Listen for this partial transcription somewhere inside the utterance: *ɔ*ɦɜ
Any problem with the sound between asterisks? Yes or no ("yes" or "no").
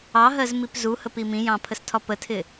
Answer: yes